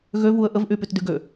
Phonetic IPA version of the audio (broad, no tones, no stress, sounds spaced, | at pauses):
ɣ ø v u ə̯ ʔ ə v ʔ y p y t d y ɡ ø